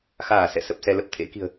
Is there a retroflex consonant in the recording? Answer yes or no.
no